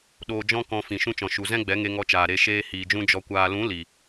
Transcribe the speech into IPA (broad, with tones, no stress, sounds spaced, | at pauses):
ɗ oː˧ d͡ʒ ɔ̃˦ k ɔ̃˧ f ĩ˨ ʃ ũ˧ t͡ʃ ɔ̃˨ ʃ u˨ z ɛ̃˦ ɡ͡b ɛ˨˦ ŋ e˧ ŋ ɔ˧ t͡ʃ aː˨ ɾ e˧ ʃ eː˧ h iː˨ d͡ʒ ũ˧ d͡ʒ ɔ˨ kʷ aː˨ l ũ˨˦ l i˨